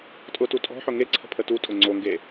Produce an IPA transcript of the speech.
tʼ ʊ t u tʼ ɔ̤ ħ ʊ ŋ e ǀʰ ə̤ pʰ ə t u tʼ ʊ ŋ͡ǀ o ŋ ɡ e

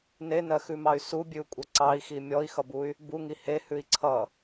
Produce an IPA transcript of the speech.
n e n ɜ x ʉ m ɑ y̯ s u bʲ ʉ u̯ kʷʼ ʌ ǀ ɑ i̯ x i mʲ ɔ i̯ x ʌ b u y̯ | b u ŋ i h e h ʉ i̯ ǀʰ ʌ

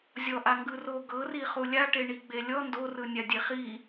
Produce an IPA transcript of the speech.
zʲ ɔ ʔ a ŋ ɡ ɯ r o ɡ ɤ r i χ u lʲ a ʈ e ɳ i ɡ͡b e lʲ ɔ n d o r ɯ nʲ a dʲ e χ i

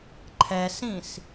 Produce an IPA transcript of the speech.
ǃʰ ɛ s ĩ s

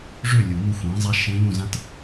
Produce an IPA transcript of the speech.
ʐ ø˥˩ lʲ u˨˩˦ n u˧ xʷ ẽː˩˥ zˤ a˧˥ ʃ ẽ˧˥ ʎ ũ˥˩ z ã˥ t

